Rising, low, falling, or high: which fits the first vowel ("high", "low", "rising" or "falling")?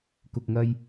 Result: low